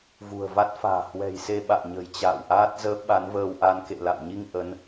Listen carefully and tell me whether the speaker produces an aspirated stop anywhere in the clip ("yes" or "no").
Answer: no